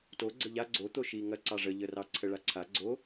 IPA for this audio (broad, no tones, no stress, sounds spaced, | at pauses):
t o ɡ͡ǀ ə ʎ a ɡ͡ǀ o t̪ o ʃ i ŋ ɐ ǀ ɑ ʐ ə ʎ ə r ɑ ǀʰ ə ɭ a ǀʰ a ɡ͡ǀ o